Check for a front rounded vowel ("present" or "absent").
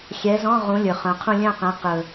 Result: present